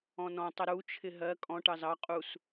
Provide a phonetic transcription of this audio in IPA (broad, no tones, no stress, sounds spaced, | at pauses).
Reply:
ɔ̃ n ɔ̃ tˤ ə ɾ u t͡ʃʰ ɪ ɦ ɜ kʼ ɔ̃ ʈ ɑ z ɑ qʼ u s